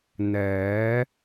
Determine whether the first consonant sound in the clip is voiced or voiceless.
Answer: voiced